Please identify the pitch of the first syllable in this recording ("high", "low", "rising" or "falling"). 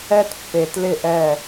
high